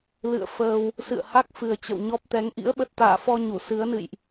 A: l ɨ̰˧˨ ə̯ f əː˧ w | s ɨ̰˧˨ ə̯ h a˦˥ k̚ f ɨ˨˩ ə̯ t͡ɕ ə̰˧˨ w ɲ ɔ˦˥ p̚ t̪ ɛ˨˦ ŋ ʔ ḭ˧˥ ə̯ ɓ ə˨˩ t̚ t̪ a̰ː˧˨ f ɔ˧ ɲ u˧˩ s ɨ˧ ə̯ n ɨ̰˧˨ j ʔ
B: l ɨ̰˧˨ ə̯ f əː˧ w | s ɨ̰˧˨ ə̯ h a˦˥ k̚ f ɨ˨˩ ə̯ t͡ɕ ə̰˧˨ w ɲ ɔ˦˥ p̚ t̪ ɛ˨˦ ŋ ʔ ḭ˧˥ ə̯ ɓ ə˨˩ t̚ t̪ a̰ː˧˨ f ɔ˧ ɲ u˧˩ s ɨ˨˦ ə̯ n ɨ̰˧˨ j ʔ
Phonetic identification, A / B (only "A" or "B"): B